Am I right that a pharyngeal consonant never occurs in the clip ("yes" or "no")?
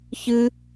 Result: yes